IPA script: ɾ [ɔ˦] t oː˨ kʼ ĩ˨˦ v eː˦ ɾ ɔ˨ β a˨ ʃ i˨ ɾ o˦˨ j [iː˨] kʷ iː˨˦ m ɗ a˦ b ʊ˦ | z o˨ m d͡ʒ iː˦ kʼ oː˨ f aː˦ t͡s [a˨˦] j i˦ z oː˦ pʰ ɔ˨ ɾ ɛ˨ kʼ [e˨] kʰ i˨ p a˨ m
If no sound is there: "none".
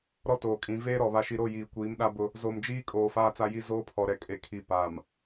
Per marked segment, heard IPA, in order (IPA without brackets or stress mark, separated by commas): ɔ˦, iː˨, a˦, e˨